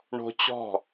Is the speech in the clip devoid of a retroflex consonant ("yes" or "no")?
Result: no